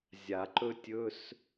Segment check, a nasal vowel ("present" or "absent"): absent